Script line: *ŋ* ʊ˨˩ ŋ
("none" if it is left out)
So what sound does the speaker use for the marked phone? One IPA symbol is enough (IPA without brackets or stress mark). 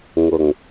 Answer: ŋ